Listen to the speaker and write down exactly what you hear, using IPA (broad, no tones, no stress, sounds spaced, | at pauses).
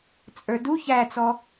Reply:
t͡sʼ ə˞ d u ç æ t͡s ɔ